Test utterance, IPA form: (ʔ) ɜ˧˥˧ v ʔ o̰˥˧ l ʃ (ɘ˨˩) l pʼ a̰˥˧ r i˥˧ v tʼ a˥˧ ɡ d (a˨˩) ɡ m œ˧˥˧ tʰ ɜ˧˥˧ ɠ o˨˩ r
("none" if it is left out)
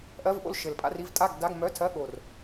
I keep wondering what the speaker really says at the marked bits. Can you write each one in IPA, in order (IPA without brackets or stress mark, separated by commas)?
ʔ, ɘ˨˩, a˧˥˧